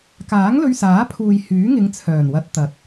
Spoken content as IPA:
kaː˨˥ŋlɵ˧ɥsaː˨˥pʰuː˨j hyː˨˥ŋɪ˨˧ŋt͡sʰœː˨˩nwɐ˨˥t̚ t̪ɐ˨t̚

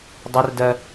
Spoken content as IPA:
dˤʊrdɜ

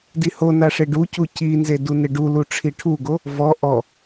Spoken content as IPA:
dihonaʂe ɖucu cinze dunɪɖu luʈ͡ʂʰiʈʰuɡo | vɔ ʔɔ

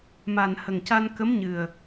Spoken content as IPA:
ma˨˩n hə˨˩ŋca˧n kə˧˥mɲɨ˨˩ə̯

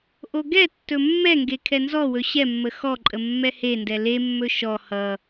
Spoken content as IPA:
ʔoɡɛtːɵ mːɛŋɡe kʰɛnzɔwɵ ɕɛmːə xɔǃʼə mːɛhendɛ lemːɵ ʃɔ hʌ

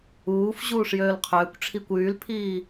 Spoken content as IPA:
uːfʑuːʂ jøːlqʰøːkʷʈ͡ʂʰikʷ yːlpʰiː

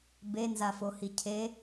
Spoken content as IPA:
benzafohi cʰe

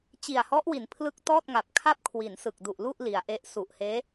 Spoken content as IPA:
t͡ɕi˨˩a̯hɔ˦˥ʔwi˩˦n pʰlɯ˥˩k̚ tɔː˥˩t̚ŋa˨˩p̚ kʰa˥˩p̚kʰwi˩˦nsɯ˨˩k̚ du˨˩ʔlu˥˩ʔ li˩˦a̯ʔe˦˥ʔ su˨˩ʔheː˦˥

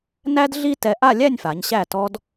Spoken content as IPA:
næ˥d ɮi˥ tɛ˧ʔa˥˧lʲæ˥˧nʲfa˩˧ɲ ɕæ˧˩tɔ˧d

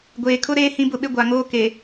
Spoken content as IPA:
ɡʷeː˨kʰʊ˦ ɾeː˦ hĩ˦bʊ˦ɓɪ˦ ɡʷa˨ŋoː˦ke˨

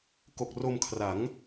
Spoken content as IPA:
ko˨˩k̚ro˧mkʰra˩˦ŋ

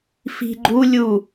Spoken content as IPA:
fi̤ɡ͡ǃu lʲu

